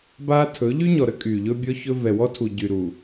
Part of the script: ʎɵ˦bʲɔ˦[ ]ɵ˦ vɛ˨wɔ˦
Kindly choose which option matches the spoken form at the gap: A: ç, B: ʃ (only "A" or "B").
A